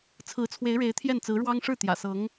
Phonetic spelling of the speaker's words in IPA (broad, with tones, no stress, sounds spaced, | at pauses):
t͡sʰ ɹ̩˧˥ t͡sʰ w e˧˥ ɪ̯ ɻ e˧˥ ɪ̯ t̪ʰ j ɛ˥˩ n t͡s ɹ̩˧˥ ɻ w ɑ˥ ŋ ʂ ɻ̩˥˩ t̪ j ä̰˨˩ s ɤ˧˥ ŋ